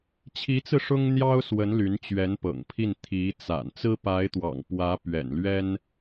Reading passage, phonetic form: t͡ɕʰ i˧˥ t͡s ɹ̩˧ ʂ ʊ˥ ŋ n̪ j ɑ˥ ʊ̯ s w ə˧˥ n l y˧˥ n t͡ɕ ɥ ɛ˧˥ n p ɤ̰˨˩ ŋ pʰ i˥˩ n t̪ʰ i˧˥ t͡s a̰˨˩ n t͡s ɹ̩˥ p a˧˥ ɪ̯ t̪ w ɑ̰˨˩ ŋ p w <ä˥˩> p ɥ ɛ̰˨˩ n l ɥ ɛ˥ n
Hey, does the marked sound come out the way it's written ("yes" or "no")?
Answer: no